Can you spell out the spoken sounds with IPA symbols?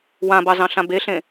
w ã b ɑ z ɑ̃ ɬ ã b e ɬ ẽ

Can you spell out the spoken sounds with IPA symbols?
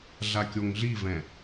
ɮ a kʲ o ŋ ɮ i v ɛ̃

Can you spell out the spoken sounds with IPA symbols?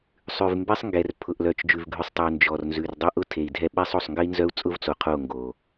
sˤ ʉ˨ v m b ɛ˦ sˤ ŋ ɡ ɛ˨ r pʰ ʊ˨ ʔ l œ˨ t͡ʃ d͡ʒ ʉ˨ v ɡʱ ʉ˨ sˤ tˤ œ˨ u̯ n d͡ʒ ɔ˨ r n z ʉ˨ r dˤ o˦ ʔ ʊ˦ tʰ e˨ i̯ dʱ ɛ˦ ɓ ɛ˦ sˤ o˨ sˤ ŋ ɡ ə˦ i̯ n z œ˦ u̯ t͡sʼ ʊ˦ v t͡s o˨ qʰ o˦˨ ŋ ɡ o˨

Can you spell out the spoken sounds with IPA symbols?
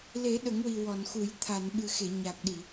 l e˨˩˦ ɗ ə˨˩˦ ŋ w i˨˩ w ɔ˨˩˨ n x u˨˩˦ j t̪ʰ a˨˩˨ n ɓ ɨ˨˩ x e˨˩˨ ɲ a˨˩ k̚ ɗ i˨˩˨

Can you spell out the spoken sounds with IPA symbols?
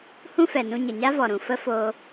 h ũ˦ f ɛ˨ n ũ˧ ɲ ə˨ ɲ a˦ v ɔ˨ ɾ ũ˨ f ə˦ f oː˧

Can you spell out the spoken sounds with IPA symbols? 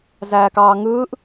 z æː k ɑː ŋ ɯː ʔ

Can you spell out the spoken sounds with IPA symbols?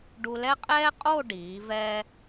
ɖ u˧ l ɛ˥ qʼ ɛː˥ qʼ o˥˧ ɖ iː˩˧ v ɛ˧

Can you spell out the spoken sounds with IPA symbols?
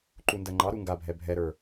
ǃ u n d ɜ ŋ͡ǃ ɑ ɾ u ŋ ɡ a bʱ ɛ bʱ ɛ ɾ ə˞

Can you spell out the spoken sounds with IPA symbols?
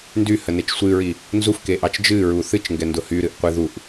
n d y h ə n e t͡ʃ sʷ ɨ ɹ i | n z u f k e ʔ ɑ t͡ʃ d͡ʒ ɨ ɹ u θ ɨ t͡ʃ ŋ ɡ ɛ n d ʊ h y ɾ ɨ ʔ qʷ ɨ ð u ʔ

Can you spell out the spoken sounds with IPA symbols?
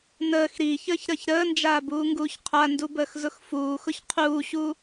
n əː x ɾ i ç əː ç ɾ ʌ ç ɾ əː n d͡ʒ aː b uː ŋ ɡ uː ç qʰ a n d u b əː x z ʊ x f uː x ʊ ç qʰ uː ɕ u

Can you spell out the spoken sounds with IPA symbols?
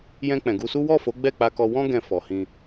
j ɛ̃˧ k͡p ɛ̃˨ ɡ u˧ s u˦ w ɔ˦˨ f o˨˦ ɡ͡b ɛ˦˨ k͡p a˧ k ɔ˧ w ɔ̃˦ ɡ ɛ̃˧ f ɔ˨ h ĩ˧

